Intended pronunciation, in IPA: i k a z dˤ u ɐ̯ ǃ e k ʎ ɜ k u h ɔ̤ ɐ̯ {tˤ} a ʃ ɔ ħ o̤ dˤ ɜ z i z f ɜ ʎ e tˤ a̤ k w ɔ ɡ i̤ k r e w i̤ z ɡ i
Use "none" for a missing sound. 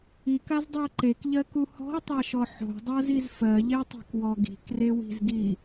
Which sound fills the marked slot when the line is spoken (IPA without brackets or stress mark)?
tˤ